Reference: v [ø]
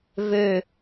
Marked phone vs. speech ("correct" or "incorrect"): correct